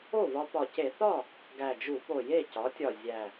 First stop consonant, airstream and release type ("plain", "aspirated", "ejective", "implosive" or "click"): plain